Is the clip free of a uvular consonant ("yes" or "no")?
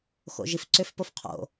no